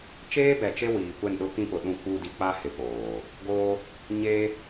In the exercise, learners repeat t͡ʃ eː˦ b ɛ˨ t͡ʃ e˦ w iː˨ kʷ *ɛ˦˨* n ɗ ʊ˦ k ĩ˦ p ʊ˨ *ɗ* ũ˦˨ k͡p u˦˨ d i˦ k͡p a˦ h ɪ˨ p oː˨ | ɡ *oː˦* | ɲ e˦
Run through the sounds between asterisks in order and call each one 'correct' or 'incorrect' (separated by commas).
correct, correct, correct